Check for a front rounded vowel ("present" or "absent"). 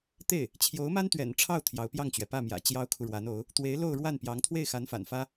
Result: absent